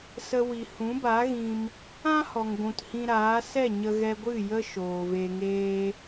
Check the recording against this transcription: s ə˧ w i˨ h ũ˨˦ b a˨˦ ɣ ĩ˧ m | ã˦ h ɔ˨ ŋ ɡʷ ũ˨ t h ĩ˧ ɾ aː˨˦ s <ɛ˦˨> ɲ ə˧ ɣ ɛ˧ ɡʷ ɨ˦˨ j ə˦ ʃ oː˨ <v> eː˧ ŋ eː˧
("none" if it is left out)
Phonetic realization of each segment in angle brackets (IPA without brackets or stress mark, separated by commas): ɛ˦˨, v